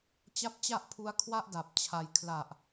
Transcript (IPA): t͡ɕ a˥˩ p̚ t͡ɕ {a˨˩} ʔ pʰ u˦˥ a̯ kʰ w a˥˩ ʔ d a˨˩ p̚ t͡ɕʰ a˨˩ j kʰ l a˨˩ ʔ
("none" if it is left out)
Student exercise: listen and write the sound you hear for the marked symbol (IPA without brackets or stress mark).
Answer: a˥˩